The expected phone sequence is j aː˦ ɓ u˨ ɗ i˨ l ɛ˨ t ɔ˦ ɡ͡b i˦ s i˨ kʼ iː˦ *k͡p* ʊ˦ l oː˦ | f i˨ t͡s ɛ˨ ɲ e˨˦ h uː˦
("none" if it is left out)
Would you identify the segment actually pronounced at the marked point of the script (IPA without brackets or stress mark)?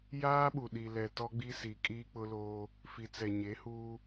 k͡p